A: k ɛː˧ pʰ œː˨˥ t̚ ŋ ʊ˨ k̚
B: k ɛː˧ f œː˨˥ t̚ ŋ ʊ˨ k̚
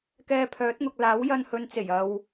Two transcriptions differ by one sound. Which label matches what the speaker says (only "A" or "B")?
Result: A